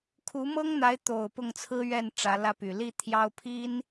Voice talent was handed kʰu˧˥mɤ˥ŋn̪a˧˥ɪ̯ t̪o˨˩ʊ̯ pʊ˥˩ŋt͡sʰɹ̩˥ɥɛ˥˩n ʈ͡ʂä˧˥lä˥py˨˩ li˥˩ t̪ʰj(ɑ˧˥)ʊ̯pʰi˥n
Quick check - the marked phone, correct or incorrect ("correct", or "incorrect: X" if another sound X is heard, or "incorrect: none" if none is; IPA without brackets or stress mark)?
incorrect: ɑ˥